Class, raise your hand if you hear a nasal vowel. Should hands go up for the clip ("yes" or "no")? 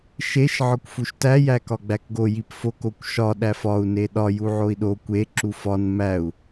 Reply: no